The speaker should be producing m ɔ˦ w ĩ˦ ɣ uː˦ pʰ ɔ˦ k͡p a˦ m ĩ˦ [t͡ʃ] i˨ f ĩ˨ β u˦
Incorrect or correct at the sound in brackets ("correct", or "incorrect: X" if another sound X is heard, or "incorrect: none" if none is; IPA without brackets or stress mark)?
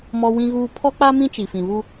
correct